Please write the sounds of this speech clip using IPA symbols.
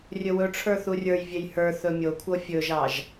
rʲ ɵ w ɵ ʈ͡ʂʰ ə˞ θ u rʲ ə˞ j vʲ e j h ə˞ θ ɵ mʲ o kʷʰ ɤ fʲ ɵ ʒ ɑ ʒ

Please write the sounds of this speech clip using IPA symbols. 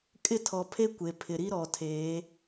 kʼ ɪ˦ tʰ ɔ˨ pʰ e˦ kʷ e˨ pʰ ɪ˨ ɾ i˦ ɾ ɔ˨ tʰ eː˨˦

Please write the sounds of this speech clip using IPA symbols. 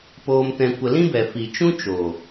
p oː˧ m t ɛ̃˧ kʷ ə˧ l ĩ˦ b ɛ˨ f i˨ t͡ʃ ũ˦ t͡ʃ o˨

